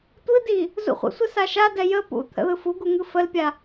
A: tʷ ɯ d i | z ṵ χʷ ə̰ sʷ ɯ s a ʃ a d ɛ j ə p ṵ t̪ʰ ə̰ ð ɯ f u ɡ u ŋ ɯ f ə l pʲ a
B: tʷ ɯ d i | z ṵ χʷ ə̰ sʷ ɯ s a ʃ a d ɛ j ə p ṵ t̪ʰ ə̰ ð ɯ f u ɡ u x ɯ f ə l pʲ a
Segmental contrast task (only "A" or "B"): A